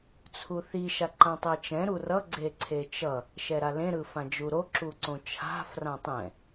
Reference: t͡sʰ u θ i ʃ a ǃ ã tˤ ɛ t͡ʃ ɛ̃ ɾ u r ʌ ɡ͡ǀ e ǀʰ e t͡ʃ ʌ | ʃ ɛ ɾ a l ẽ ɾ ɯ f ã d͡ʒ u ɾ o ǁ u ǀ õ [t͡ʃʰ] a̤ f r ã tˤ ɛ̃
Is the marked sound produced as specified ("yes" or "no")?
yes